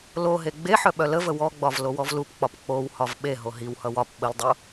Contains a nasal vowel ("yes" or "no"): no